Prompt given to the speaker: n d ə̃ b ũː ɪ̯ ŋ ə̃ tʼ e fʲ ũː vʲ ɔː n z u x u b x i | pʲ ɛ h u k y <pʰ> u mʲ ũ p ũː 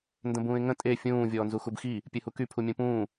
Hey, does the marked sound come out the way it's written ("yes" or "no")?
yes